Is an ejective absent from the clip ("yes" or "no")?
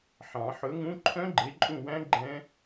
no